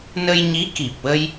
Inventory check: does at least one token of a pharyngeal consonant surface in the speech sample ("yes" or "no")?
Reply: no